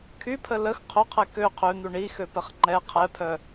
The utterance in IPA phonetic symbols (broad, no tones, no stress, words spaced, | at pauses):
kʰypʰə ləx qʰoqʰɛ kø qʰøn̪u ɳixøpɛχ ŋ͡ǃɛ qʰɛpʰœ